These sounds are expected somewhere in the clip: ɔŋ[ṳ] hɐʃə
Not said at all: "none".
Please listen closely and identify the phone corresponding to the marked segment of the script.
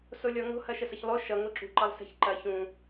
o̤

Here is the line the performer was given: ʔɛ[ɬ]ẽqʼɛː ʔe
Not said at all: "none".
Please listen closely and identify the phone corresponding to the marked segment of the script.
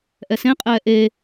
s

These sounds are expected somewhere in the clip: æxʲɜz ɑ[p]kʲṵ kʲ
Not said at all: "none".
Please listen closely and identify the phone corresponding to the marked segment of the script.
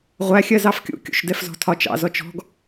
f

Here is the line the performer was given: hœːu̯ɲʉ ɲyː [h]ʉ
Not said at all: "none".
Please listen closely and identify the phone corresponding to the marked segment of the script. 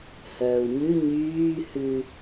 h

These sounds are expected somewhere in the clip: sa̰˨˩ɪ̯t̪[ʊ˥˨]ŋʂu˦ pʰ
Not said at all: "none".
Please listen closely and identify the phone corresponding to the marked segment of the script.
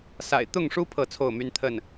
ʊ˥˨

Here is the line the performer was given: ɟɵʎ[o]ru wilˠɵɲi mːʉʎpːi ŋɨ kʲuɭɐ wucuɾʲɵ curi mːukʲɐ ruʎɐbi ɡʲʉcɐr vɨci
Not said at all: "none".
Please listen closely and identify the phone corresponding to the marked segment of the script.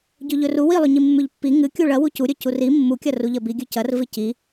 ɵ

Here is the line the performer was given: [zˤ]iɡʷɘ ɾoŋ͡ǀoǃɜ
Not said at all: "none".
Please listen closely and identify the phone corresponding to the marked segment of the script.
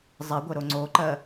zˤ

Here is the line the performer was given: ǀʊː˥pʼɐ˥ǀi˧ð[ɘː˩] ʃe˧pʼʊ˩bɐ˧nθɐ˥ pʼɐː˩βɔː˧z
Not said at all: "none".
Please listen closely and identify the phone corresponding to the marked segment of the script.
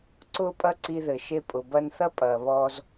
ɘ˩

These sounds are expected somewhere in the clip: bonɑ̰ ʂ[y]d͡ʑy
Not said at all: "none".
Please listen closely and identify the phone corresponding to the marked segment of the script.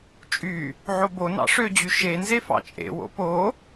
ø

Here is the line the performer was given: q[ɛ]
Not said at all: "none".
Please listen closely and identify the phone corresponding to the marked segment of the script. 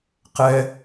ɛ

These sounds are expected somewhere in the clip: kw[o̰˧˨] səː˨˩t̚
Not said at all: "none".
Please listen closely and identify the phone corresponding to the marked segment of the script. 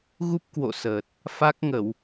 o̰˧˨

